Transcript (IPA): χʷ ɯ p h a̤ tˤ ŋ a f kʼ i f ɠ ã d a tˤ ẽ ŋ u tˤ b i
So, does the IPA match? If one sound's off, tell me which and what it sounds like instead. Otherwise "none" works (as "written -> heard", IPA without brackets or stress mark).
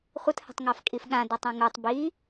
p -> t